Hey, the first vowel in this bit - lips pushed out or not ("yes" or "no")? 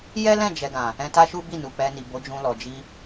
no